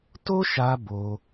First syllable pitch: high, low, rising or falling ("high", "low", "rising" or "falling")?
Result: high